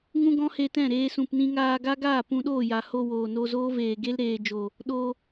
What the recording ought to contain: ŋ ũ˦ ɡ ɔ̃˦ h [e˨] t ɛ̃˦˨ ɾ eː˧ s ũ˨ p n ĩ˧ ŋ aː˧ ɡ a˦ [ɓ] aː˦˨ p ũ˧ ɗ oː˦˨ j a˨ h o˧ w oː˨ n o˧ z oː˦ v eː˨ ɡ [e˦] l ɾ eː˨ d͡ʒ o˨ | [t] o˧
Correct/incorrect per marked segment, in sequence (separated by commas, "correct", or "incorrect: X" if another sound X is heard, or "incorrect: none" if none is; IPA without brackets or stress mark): incorrect: e˧, incorrect: ɡ, correct, incorrect: ɗ